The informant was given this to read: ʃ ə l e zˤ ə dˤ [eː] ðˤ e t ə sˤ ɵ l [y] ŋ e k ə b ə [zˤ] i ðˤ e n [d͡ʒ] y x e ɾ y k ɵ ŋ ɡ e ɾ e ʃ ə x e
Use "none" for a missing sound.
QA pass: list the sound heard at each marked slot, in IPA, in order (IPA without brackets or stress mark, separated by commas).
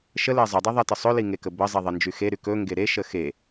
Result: e, i, zˤ, d͡ʒ